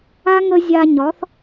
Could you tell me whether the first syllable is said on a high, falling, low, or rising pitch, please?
high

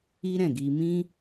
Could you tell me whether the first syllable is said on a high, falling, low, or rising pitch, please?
high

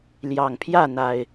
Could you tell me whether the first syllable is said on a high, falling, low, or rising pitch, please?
low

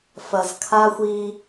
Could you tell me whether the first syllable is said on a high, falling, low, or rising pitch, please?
low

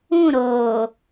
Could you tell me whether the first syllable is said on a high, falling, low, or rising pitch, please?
falling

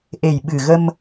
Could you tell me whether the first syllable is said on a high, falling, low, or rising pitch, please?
low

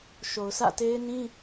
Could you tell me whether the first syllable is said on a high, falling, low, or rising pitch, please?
low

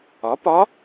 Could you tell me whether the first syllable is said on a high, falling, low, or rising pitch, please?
rising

